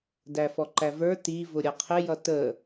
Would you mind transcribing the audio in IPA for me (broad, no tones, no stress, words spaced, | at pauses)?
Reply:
dæfɔǃævə˞ ti vʊɾʲʌqʰɪ jʌtə